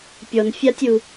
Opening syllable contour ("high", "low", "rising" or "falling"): low